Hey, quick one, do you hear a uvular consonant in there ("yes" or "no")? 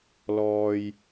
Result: no